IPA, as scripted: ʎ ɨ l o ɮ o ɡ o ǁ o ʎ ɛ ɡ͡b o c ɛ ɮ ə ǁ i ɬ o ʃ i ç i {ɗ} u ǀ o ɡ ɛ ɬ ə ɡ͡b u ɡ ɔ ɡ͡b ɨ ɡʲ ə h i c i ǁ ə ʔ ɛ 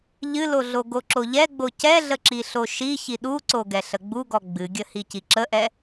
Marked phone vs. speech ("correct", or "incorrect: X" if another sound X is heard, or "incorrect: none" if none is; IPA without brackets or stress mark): correct